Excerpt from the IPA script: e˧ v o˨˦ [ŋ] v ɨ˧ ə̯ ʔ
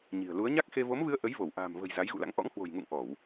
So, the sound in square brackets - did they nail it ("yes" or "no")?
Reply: no